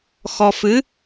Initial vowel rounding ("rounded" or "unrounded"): rounded